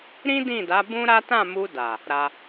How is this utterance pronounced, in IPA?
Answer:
ɾ ĩ˦ d ĩ˦˨ d a˨˦ b ũ˦ ɾ a˦ t ã˦˨ m u˧ d a˨ | ɾ a˧

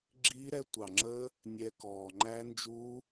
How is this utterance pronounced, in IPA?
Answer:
ɡ͡ǁ iː˦˥ ɾ ɛ˦˥ tʷ ɑ˨˩ ŋ͡ǁ əː˦˥ | nʲ ɛ˦˥ k ɔː˨˩ ŋ͡ǃ æ˦˥ n d͡ʒ uː˦˥

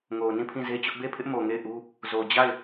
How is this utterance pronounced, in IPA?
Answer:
ŋ o˨ ʊ̯ n ĩ˦˨ pʰ ĩ˦˨ z e˦ t͡ɕ ʊ˦ ʔ b e˦˨ pʰ ɪ˦ ʔ m o˨ ŋ e˦˨ ɪ̯ ʔ u˦ | z o˨ d͡ʑ a˦˨ ɪ̯

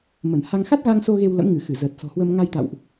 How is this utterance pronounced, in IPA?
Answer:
m ə˧˩ n h a˧ ŋ x a˦˥ t̚ ɣ a˧ ŋ s o˧ ɣ e˧ w l ə̰˧˥ m ŋ ɨ˧˩ x ɨ˧˩ z əː˨˩ t̚ s ɔ̤˨˩ h w ə˧ m ŋ a˧ j t̪ a̰˧˨ w ʔ

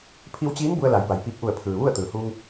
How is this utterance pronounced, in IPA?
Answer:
pʰ i˧ w t͡ɕ iː˧˥ n b u˧ ə̯ l a˩˧ j b a˩ j p iː˧˩ k̚ ʔ u˧˩ ə̯ pʰ ɯː˩ ʋ u˥˨ ə̯ t̪ ɯː˩ h uː˧ ŋ

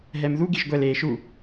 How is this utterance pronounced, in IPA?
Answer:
ɦ ɛ m ð u ɡ i ʒ ɡʷ ɛ l eː ʃ u

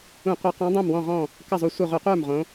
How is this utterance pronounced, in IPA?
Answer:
ũ˧˩˧ qʷ e˨˥ q ɔ̃˨˥ dˤ õ˥˩ m w ɔ̃˥˩ ʁ ɔ̃˥˩ | k ə˥˩ zˤ u˧˩ sʷ ɨ˧˩ ʁʷ ə˧˩˧ qʷ ə˞˥˩ m ʁ õ˨˥

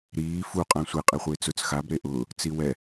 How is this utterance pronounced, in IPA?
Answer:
ɾ iː f u qʼ ã sʷ e qʼ e χʷ ɪː t͡s ʊ t͡s x a b ɾ e ʔ ʊː | t͡s i w ɛ

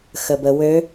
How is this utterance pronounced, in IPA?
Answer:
x ə b ə w ø

